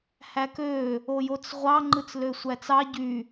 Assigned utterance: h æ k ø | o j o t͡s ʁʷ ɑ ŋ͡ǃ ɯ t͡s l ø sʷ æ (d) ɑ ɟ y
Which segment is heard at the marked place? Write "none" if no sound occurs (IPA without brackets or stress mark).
t͡s